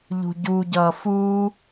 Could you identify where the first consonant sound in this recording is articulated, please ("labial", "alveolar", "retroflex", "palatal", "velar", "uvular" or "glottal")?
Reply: palatal